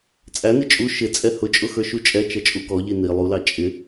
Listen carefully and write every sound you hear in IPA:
t͡sʼ æ n i t͡ʃʼ u ʃ ɪ t͡sʼ ɛ h ʊ t͡ʃʼ ʊ x ə˞ ʃ u t͡ʃʼ ɛ t͡ʃ ʌ t͡ʃʼ u k ɔ ʎ i n i lˠ u l ɑ t͡ʃʼ ɪ

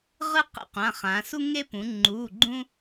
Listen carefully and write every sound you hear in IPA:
ʁ ɯ˦ q ḭ˦ qʷ ã˩˧˩ χ ã˩˧ s u˦ ŋ e˦ p ũ˩˧ ŋ͡ǃ uː˩˧˩ ɡ͡ǃ ũ˦

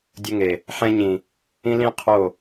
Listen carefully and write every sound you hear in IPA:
dʲ ə˧ ŋ e˨ | ħ ɛ̃˧ ɲ ĩ˨ | ĩ˦ l ĩ˦ qʰ o˦˨

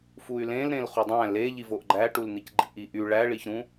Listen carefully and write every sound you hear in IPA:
f u y̯ l ẽ l ɾ ẽ l χ u dˤ æ̃ l e ʎ i v o ʔ ɡ͡ǃ æ ʈ u l n̪ i c ɡ͡ǃ ḭ ʔ i ʔ y ɭ æ ɭ i ç ɾ ũ

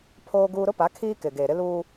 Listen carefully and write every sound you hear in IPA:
pʰ oː˦ ɡ uː˦ ɾ ʊ˦ p a˨˦ kʰ iː˦ k ɪ˨ ɡ eː˨ ɾ ɪ˦ l uː˦

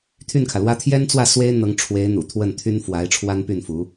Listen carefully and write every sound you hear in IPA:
t̪ʰ y˥˩ n kʰ ä˩ l w ä˥ t̪ʰ j ɛ˥ n t͡s w ä˥˩ s w e˥ ɪ̯ n̪ ɤ˧˥ ŋ ʈ͡ʂʰ w e˧˥ ɪ̯ n̪ ṵ˨˩ t̪ʰ w ə˥˩ n t̪ʰ y˥ n f w a˧˥ ɪ̯ ʈ͡ʂʰ w a˥ n p y˥˩ n f u˧˥

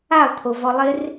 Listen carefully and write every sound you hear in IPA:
a lˠ t̪ʰ o v ɔ lˠ ɪ r

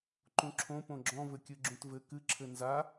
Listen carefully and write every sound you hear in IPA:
ǃ ũ ǁʰ õ p õ ɡ͡ǁ ɔ̃ v ɘ kʲ ɨ ɡ͡ǁ ũ t v ɘ k ɨ ǁʰ ɘ n z a

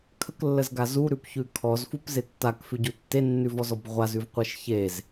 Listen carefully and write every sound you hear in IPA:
kʰ ə k lː ə z ɡ a z u ɾ ʉ p ç ʉ kʰ ɔ z f u p z e tː a k f ʉ ɟ u tː e nː ʉ v ɔ z ɔ b ʁʷ a z ʉ v qʷ e ʃ ç e z

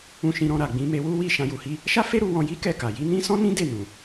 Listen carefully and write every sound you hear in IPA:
ũ˧ ʃ ĩ˧ ɾ ɔ̃˧ ɾ a˨ ɡ͡b ĩ˧ m e˧ w u˦ w i˦˨ ʃ ã˧ j u˨ h i˧ | ʃ a˦ f e˦ ɾ u˧ w ɔ̃˧ j i˦ k ɛ˦˨ k a˨ j i˨˦ n ĩ˦ s ɔ̃˦ n ĩ˦ d e˦˨ n ũ˨

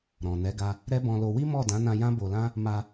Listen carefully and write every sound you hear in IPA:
ɾ ɔ̃˨ n ɛ˨˦ ɡ a˧ | ɾ ɛ˦ b ɔ̃˧ l o˧ w i˦ m ɔ˦˨ d ã˨˦ n ã˧ j ã˦ b o˧ l ã˦ | m a˧

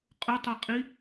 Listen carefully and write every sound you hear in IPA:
qʼ ʊ tˤ o qʼ i

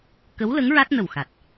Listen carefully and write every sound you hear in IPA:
k ə˧˥ w l ə˧˥ ŋ ɹ a˦˥ t̚ n ə˨˩ w x a˨˩ t̚

